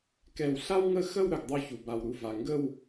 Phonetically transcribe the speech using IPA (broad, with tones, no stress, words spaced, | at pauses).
kɛ˧˩wɬa˥wŋə˥˧ xə˥˧wɾə˧˩ɡ dˤu˧˩çu˩ba˩w ɾu˧˩va˩ ŋɡə˥˧w